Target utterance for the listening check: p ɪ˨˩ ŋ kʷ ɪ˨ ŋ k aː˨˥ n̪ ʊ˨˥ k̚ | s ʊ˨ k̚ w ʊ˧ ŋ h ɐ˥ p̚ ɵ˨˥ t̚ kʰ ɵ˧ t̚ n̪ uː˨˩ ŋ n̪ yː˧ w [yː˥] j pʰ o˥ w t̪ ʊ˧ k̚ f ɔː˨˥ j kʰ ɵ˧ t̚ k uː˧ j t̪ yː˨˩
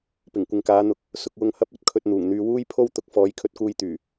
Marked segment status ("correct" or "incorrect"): incorrect